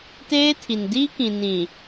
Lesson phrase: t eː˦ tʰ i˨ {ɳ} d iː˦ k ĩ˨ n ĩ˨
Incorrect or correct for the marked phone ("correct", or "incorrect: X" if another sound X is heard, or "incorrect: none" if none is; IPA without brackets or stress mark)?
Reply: incorrect: n